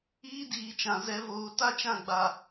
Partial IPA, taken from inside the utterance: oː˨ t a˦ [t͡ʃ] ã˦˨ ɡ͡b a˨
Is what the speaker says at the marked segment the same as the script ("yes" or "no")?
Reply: yes